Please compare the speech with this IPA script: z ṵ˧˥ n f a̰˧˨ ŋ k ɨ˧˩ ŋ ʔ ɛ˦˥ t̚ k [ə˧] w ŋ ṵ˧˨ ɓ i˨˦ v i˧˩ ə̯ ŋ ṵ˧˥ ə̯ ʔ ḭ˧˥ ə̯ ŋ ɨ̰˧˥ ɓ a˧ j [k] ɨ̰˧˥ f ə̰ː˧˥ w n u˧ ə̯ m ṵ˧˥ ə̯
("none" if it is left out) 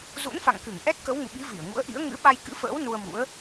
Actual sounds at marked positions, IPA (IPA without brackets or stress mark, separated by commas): ə˨˦, k